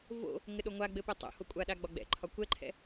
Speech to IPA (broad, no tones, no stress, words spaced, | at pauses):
vo̰ | ŋɘɗoŋʷaɡ͡bɘ pɘtˤo̰ho kʷʼaɗa ɡ͡bɒɡ͡bɛ̰ǃʰɒ kʷɛǃʰɛ̰